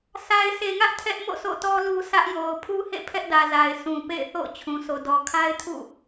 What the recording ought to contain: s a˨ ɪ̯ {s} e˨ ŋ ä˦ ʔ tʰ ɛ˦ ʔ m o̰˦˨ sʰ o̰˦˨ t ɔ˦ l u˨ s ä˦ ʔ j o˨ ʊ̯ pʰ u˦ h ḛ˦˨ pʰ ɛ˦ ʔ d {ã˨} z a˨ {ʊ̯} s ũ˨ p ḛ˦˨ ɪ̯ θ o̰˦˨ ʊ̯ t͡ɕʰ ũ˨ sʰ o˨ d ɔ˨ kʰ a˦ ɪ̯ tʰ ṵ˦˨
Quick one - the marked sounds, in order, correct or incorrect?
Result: correct, incorrect: ä˨, incorrect: ɪ̯

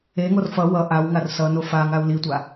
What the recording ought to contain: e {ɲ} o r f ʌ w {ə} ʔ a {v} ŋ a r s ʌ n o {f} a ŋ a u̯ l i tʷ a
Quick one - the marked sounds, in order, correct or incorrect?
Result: incorrect: ŋ, incorrect: ʌ, incorrect: w, correct

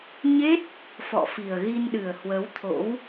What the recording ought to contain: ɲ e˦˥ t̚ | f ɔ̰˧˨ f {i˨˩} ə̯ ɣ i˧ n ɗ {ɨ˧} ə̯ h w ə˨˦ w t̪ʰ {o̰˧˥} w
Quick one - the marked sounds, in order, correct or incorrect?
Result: correct, incorrect: ɨ˨˩, correct

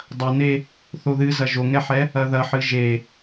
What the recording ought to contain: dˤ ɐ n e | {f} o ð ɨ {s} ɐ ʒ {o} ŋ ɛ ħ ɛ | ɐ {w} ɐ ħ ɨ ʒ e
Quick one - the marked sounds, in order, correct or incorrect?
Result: incorrect: θ, incorrect: z, correct, incorrect: ð

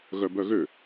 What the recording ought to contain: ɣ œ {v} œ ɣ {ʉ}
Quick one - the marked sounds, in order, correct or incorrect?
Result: incorrect: b, incorrect: ø

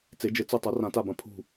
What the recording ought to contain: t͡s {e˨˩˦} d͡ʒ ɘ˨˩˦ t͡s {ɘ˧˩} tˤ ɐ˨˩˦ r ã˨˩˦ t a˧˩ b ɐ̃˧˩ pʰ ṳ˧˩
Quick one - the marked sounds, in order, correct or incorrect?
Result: correct, correct

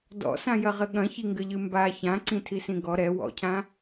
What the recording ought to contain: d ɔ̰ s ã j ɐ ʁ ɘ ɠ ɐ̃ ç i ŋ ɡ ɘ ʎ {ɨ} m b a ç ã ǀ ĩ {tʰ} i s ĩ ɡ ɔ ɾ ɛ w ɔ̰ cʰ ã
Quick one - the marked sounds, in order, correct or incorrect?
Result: correct, correct

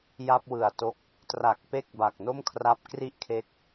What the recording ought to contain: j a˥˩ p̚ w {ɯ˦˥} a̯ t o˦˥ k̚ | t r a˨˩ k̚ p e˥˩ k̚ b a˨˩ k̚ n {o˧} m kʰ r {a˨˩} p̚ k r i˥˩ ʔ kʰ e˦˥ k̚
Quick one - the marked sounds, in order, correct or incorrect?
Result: incorrect: ɯ˨˩, incorrect: o˥˩, incorrect: a˦˥

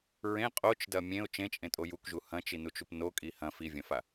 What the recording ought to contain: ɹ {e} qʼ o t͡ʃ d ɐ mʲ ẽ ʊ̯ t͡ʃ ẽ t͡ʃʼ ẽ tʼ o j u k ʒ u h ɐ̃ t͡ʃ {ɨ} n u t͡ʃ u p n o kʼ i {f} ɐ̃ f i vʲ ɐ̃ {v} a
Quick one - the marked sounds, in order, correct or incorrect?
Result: incorrect: ẽ, incorrect: i, incorrect: h, incorrect: f

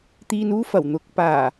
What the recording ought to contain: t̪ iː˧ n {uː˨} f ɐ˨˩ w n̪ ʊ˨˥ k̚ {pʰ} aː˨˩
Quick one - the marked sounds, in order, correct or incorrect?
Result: incorrect: uː˥, incorrect: p

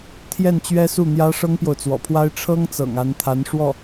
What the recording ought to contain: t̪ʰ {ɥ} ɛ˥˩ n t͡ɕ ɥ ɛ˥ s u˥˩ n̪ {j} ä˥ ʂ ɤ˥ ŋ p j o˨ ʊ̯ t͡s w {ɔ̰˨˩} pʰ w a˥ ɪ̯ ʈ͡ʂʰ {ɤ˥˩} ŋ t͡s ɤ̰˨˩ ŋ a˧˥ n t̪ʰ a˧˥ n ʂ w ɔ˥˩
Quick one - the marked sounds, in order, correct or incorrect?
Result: incorrect: j, correct, correct, incorrect: ɤ˥

